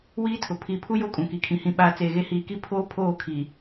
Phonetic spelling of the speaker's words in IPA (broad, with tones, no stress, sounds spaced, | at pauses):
w iː˦ tʰ ʊ˨ pʰ iː˨ pʰ u˦ j o˦ kʼ ũ˨ k i˨ kʰ ĩ˨ h ĩ˨ ɓ aː˨ t͡s eː˨ ɣ e˦ h iː˨ k i˦ pʰ oː˦ pʰ oː˦˨ kʰ i˨